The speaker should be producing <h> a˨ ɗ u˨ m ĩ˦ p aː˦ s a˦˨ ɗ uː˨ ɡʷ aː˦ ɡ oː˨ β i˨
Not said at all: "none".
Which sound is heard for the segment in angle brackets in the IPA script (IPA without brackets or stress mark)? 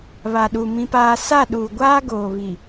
β